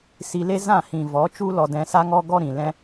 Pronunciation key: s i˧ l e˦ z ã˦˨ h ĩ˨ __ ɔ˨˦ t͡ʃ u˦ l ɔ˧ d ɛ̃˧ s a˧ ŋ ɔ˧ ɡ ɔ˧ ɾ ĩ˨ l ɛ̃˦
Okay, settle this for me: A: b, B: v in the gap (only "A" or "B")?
B